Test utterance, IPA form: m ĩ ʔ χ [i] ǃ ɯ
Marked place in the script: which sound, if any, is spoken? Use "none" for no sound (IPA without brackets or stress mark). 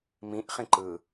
ĩ